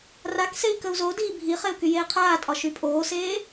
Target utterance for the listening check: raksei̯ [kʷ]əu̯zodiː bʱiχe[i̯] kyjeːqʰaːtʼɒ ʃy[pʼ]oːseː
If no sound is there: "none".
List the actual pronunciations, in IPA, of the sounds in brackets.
k, u̯, pʼ

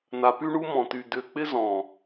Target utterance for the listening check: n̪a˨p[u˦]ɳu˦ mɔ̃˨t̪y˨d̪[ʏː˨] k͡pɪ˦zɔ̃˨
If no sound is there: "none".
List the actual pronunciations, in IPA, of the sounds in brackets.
y˦, ʏː˨

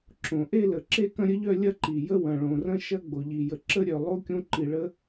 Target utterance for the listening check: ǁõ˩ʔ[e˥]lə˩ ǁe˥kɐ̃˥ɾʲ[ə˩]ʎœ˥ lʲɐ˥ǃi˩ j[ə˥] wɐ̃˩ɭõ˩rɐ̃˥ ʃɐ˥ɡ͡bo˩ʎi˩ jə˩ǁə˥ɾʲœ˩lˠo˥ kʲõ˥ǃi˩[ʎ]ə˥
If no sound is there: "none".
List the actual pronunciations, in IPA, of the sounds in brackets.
e˥, ə˥, ə˥, ɭ

